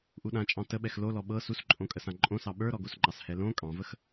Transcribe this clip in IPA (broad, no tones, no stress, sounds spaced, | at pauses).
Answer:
ʔ u ɗ ã t͡ʃʼ ɑ̃ t ə ɓ ɛ x l o l ɔ ɓ ɤ s u s ǃʼ õ kʼ ə s ã ǃʼ õ s ɑ ɓ ə˞ ɾ ɔ ɡ o s ŋ͡ǃ ɑ s h ɛ l õ kʼ ɑ̃ v ə x